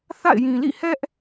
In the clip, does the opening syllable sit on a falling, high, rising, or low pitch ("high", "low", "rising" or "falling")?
falling